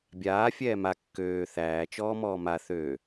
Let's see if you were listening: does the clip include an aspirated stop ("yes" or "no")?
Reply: no